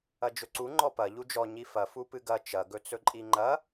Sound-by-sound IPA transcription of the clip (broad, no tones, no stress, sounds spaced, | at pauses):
ɐ d͡ʒ ɵ ǀ u ŋ͡ǃ ɔ p ɐ ʎ u d͡ʒ ɔ ɲ i f ɐ f u p ɨ ɡ ɐ t͡ʃ ɐ ɡ ɵ t͡s ɵ ǃʼ i ŋ͡ǃ ɐ